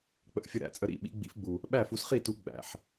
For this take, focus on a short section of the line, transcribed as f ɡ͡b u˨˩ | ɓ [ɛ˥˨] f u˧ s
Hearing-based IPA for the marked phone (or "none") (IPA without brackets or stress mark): æ˥˨